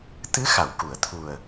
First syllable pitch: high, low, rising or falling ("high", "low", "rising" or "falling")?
rising